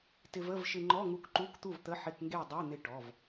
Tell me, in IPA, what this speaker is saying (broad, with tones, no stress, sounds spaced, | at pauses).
t ɪ˧ v ə˧˥˧ v ʃ ɪ˧ ŋ͡ǃ ɔ˧˥˧ ŋ u˧ k ǃ u˧˥˧ k t̪ u˥˨ v t̪ ə˧˥˧ ħ ɪ˧˥˧ k ŋ ɡ e˥˨ dˤ e˧˥˧ n̪ ɪ˧ ʈ ɔ˩˧˩ v